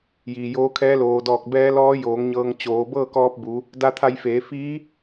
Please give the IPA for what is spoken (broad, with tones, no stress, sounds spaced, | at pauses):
j iː˩ j oː˧˥ kʰ ɛː˧˥ l oː˩ d ɔː˧˩ k̚ b ɛː˧˥ l ɔː˧˥ j oː˩˧ ŋ ɲ ɤː˧ ŋ t͡ɕ oː˩˧ b ɤː˥˨ k ɔː˧ p̚ b u˩˧ | d a˧ t̪ʰ a˧ j f eː˩˧ f iː˧˥